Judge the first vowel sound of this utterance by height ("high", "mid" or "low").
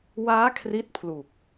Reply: low